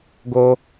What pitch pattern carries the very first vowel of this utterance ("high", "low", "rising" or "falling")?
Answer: high